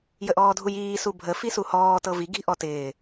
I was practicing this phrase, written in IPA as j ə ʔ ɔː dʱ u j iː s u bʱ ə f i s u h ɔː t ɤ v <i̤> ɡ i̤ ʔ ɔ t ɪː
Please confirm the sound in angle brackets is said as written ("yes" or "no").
no